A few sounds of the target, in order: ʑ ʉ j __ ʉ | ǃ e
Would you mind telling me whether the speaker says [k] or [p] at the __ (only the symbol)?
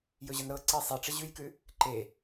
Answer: k